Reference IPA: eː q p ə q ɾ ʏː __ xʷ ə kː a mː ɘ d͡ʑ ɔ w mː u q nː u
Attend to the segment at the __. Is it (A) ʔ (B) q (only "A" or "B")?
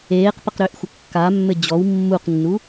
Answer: A